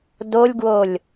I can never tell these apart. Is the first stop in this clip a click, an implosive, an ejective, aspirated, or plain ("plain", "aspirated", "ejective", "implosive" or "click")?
plain